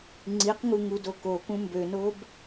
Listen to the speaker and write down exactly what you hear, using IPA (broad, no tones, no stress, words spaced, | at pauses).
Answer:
ŋ͡ǀiqŋu ŋudokokũ mbønob